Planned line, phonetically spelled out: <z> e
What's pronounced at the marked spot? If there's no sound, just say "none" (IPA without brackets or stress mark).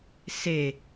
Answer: s